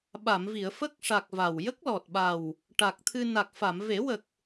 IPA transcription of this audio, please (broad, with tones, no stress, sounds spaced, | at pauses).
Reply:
ɓ a˨˩˨ m v i˨˩˨ ə̯ f ə˦˥ k̚ ʂ a˨˩ k̚ v a˨˩ w j ə˦˥ k̚ l ɔ˨˩ t̚ ɓ a˨˩ w | ʈ a˨˩ k̚ t̪ʰ ɨ˧ n a˨˩ k̚ f a˨˩˨ m v e˨˩˦ w ə˨˩ k̚